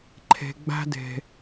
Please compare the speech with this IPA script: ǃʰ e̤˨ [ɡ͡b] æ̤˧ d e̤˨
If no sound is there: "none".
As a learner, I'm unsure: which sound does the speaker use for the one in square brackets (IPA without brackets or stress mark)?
ɡ͡b